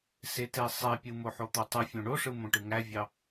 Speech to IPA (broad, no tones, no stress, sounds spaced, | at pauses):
s e t e sˤ e pʲ ɯ m o ħ o t̪ o tˤ ɯ fʲ õ ɳ o ʂ ɯ m õ ʈ ɯ ŋ æ vʲ ɑ